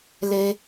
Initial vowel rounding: unrounded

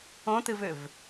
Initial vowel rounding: rounded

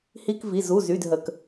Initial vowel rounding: unrounded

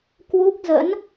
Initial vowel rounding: rounded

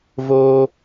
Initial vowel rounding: rounded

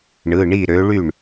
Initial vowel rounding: unrounded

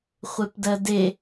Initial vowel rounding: unrounded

